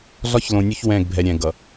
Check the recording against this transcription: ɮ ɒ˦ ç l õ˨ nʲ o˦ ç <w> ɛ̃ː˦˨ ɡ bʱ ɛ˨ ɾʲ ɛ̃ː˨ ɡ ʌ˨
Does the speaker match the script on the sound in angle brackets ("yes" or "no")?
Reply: yes